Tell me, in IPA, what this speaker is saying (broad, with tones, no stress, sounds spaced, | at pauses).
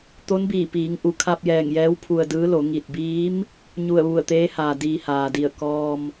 t̪ o˧˥ n b iː˧˩ p iː˩˧ ŋ ʔ u˩˧ kʰ a˧ p̚ j ɛː˧˩ ŋ j ɛː˧˥ w pʰ u˧ ə̯ d ɯː˧˥ l o˩˧ ŋ i˧˩ t̚ b iː˧˥ m | ɲ u˧˩ ə̯ ʋ u˧˩ ə̯ t̪ eː˧˥ h aː˩ d iː˧ h aː˩ d i˧˩ ə̯ k ɔː˧ m